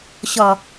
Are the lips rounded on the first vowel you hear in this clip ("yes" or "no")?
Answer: yes